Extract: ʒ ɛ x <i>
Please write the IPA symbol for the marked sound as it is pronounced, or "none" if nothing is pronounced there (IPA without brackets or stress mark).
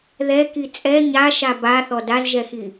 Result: i